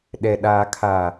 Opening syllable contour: low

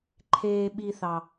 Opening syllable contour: high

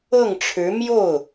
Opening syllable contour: falling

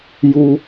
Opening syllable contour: low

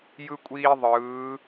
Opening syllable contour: high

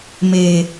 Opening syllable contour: low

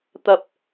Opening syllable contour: high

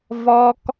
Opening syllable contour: high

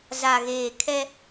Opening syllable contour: low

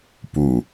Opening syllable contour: low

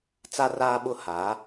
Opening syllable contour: high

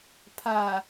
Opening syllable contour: low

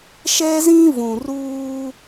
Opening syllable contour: high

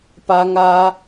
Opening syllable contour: high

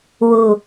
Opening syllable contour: low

